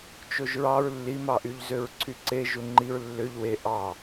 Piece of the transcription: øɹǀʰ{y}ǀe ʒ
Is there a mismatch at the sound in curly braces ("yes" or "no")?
no